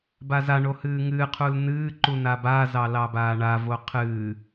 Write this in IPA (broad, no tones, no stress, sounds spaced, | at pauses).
b a z a ɳ o h ɨː ŋ ɨː qʰ u l n ɨː ǃ u n a b aː z ɑ l ɑ b aː ɳ a v o qʰ ɨː